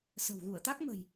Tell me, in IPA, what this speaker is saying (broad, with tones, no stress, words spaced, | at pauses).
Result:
sə̤˨˩wɣu˧˩ə̯t̪a˦˥k̚mə̤˨˩j